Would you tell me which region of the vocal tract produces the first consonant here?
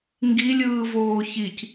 velum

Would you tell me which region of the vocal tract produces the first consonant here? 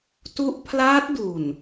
tongue tip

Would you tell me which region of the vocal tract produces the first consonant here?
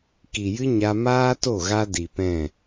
velum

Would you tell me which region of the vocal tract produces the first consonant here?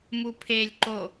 lips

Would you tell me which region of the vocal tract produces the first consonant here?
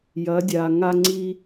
palate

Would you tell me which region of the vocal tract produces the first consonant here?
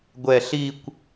velum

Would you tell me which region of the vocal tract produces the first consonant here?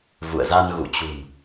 lips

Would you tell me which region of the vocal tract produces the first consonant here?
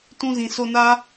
tongue tip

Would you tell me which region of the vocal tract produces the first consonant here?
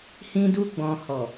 throat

